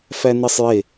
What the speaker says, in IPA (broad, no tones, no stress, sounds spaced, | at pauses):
f æ n i sˤ j e